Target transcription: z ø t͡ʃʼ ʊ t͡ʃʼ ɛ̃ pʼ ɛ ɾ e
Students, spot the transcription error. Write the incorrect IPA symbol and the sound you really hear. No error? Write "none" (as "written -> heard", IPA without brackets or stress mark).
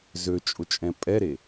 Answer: none